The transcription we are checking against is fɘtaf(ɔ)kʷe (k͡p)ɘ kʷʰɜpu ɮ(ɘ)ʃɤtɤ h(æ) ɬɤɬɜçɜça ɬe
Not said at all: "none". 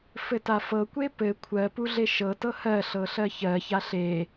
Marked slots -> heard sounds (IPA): ɤ, p, e, ɜ

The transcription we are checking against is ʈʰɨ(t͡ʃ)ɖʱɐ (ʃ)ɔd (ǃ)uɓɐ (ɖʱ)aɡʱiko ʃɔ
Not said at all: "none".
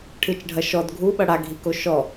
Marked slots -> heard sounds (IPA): t͡ʃ, ʃ, ɡʱ, ɽ

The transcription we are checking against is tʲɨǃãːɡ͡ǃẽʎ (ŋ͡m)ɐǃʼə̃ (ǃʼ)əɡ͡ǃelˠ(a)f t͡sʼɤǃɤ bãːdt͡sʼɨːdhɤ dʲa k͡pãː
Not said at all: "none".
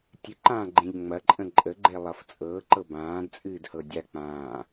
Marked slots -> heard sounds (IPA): ŋ͡m, ǃʼ, ʌ

